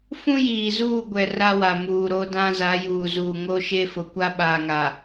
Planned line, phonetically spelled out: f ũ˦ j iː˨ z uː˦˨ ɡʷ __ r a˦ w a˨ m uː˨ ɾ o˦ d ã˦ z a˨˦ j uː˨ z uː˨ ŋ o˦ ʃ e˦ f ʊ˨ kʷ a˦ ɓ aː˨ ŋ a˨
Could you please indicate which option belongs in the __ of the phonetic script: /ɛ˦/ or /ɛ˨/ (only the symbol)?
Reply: ɛ˨